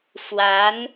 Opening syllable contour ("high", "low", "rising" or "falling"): rising